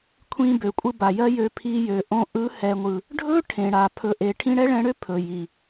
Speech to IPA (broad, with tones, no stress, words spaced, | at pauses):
kʷʰĩ˧bø˨kʷʼɯ˧ ba˨jɜ˦jø˧ pʰi˧jø˨ʔõ˧ ʔɯ˨˦hɛ˨ŋʷɯ˨ | ɖʱɵ˦ ʈʰẽ˨ɽa˨ pʰɵ˨ʔe˨ ʈʰĩ˧ɽɛ˦ɭɛ̃˧ɽø˦ pʰɵ˨ji˨